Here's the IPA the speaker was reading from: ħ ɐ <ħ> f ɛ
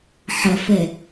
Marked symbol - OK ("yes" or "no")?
no